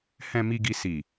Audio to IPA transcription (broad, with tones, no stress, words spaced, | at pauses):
hɛ̃˨mi˨ɡi˨ si˨